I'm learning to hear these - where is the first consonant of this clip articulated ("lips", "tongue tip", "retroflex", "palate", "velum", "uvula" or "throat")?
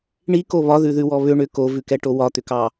retroflex